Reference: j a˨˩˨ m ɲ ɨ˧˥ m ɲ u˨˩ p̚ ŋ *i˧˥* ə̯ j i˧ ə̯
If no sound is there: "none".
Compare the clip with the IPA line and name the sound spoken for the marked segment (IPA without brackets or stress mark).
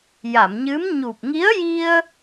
i˧˥